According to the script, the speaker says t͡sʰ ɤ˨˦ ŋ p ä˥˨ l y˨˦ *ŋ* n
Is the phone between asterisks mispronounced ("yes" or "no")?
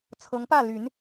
yes